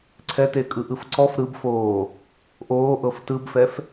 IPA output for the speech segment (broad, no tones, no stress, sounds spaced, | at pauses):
ǀʰ ɛ t e kʼ ɯ ʔ ɯ f ǀ ɔ f ɾ ɯ b f oː | ʔ oː ʔ ɤ f t ɯ b f ɛ f